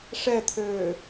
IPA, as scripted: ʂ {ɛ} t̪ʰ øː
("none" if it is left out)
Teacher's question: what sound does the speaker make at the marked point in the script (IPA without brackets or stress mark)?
ɛ